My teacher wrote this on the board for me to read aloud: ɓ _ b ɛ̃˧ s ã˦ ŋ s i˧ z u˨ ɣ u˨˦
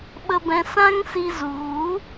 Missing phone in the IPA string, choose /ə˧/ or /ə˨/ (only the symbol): ə˧